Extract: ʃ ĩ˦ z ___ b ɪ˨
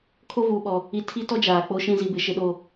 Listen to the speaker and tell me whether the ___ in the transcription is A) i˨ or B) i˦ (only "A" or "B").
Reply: A